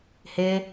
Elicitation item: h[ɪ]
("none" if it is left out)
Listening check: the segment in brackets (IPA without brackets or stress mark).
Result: ɪ